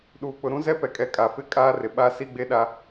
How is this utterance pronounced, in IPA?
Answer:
ɗuː˨k͡pʊ˨ ɾũ˦zɛ˦pɛ˨kʼɛ˨ kʼa˨fɪ˦˨kʼaː˦rɪ˨ ɓa˦ si˦ɡ͡be˦ɗa˦

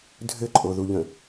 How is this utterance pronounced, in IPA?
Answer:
dʱɘǃʼoðuʎə̃

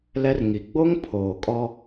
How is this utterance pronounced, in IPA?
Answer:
lɛ˦rŋi˨ ɡ͡bo˦ŋ pʰoː˨kʼɔ˦

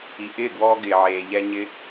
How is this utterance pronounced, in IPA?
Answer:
i˨ʔɪː˦˨ɡwɔː˧ ɡɪː˨ʕeː˨ ʎɛ˧ ɲɪ˧

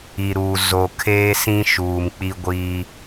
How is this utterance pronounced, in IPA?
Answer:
i˨ɾuː˨ zo˨ kʰeː˦sĩ˦ʃuː˨m k͡pi˦ɡʷiː˦

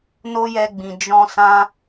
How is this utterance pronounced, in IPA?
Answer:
no˦jɛ˧ɡ͡bĩ˨ d͡ʒɔ̃˧sã˧

